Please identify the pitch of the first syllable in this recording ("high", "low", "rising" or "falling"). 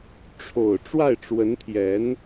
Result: low